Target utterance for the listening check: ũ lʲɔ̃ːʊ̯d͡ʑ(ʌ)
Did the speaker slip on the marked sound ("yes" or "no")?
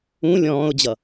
no